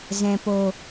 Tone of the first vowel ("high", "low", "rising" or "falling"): low